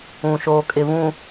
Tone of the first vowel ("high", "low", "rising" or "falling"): low